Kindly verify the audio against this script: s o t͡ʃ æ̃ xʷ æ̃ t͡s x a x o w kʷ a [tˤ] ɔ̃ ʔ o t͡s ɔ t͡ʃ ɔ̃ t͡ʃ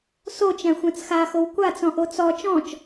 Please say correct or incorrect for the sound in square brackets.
incorrect